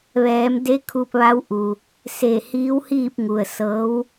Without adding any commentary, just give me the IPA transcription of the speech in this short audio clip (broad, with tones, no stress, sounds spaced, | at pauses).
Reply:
ʋ ɛː˩˧ m d e˧˥ kʰ u˧ p̚ ʋ a˧˥ w ʔ u˩ | s e˧˩ h iː˧˥ w h iː˥˨ p̚ ŋ u˩ ə̯ s ɤː˧˥ w